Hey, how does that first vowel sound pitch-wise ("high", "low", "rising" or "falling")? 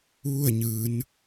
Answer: falling